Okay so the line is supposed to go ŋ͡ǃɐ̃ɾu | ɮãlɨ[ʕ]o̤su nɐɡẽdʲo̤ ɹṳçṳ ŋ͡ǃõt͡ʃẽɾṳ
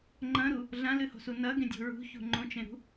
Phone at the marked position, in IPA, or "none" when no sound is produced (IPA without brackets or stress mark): h